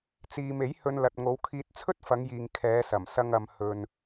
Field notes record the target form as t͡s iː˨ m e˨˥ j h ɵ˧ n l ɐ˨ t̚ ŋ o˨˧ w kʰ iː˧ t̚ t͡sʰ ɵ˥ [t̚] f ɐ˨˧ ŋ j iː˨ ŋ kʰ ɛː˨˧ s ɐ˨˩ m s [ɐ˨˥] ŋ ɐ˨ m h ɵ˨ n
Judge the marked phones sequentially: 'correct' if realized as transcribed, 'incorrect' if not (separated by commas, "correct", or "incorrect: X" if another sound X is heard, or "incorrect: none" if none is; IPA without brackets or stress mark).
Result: correct, incorrect: ɐ˧